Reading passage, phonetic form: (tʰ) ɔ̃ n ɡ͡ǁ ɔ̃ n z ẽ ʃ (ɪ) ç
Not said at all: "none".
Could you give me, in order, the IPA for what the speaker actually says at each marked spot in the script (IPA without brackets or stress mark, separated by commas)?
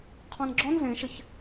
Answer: qʰ, ɪ